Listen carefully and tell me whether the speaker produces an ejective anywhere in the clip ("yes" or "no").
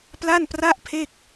no